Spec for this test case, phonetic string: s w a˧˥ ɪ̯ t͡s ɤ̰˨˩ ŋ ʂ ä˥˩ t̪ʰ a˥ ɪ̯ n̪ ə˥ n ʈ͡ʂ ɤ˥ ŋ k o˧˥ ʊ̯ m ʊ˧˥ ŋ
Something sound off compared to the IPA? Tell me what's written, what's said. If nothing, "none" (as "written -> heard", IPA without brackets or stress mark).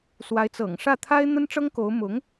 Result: none